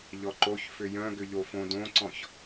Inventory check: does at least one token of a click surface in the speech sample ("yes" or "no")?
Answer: yes